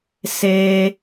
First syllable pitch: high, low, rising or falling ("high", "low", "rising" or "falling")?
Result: high